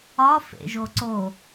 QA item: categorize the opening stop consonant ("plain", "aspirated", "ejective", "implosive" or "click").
click